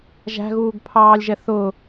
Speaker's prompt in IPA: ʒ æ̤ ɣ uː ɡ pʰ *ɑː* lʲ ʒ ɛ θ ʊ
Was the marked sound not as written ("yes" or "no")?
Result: no